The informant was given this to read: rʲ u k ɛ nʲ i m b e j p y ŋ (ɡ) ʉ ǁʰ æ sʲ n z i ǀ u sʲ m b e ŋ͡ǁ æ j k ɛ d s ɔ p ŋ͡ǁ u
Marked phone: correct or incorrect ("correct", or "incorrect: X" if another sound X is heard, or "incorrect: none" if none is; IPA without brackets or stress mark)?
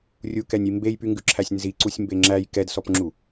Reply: correct